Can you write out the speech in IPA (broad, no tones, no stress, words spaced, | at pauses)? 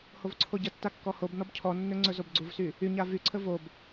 hovǀʰoɟətːa kːɔhobnɔb cʰɔnːɵ ŋ͡ǀɵzobɡ͡ǀuvsy | yɲa vyǀʰə vob